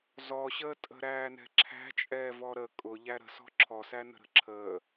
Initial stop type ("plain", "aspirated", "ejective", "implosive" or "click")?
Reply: ejective